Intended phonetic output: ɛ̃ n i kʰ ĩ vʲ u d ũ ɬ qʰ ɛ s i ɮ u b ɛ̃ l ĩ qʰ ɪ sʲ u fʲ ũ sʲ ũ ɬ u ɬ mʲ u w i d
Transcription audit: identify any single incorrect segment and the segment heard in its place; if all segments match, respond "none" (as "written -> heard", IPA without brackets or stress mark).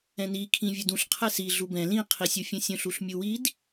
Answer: ɪ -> i